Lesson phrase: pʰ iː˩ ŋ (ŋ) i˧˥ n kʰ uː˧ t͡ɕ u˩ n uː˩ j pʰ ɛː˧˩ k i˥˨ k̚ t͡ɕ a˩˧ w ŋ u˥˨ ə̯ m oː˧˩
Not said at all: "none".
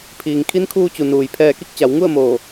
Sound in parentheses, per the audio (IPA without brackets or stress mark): kʰ